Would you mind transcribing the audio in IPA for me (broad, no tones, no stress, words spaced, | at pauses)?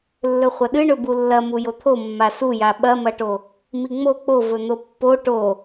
lːɵχʷɐɗɨ ɳɵbulːɐ mujot̪ʰo mːasuja ɓɐmɐʈo | miŋ͡mo k͡povɵn̪o pːo ʈo